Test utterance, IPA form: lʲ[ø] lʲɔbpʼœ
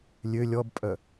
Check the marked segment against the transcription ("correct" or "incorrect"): correct